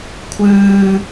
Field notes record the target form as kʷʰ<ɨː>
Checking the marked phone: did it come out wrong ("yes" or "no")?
no